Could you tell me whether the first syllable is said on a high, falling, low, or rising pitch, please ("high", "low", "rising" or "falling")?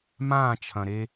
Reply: falling